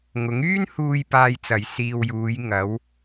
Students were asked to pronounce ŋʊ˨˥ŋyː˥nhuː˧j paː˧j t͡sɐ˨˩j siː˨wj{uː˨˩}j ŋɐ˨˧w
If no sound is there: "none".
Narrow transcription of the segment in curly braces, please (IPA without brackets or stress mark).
uː˨˧